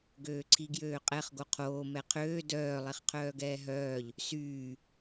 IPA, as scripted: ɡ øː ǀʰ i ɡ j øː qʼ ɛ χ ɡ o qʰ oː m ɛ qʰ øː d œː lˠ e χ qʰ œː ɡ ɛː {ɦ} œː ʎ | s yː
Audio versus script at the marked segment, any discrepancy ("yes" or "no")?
no